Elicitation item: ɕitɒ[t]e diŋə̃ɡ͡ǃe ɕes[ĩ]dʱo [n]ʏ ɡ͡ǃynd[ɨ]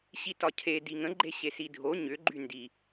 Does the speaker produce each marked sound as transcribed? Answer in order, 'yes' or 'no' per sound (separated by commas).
no, no, no, no